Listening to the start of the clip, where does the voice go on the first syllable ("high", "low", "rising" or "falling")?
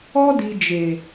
high